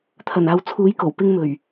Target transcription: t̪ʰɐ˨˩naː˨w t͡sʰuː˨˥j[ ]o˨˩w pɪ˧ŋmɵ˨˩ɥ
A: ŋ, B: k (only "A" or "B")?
B